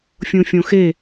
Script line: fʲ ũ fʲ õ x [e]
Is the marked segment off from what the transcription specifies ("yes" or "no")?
no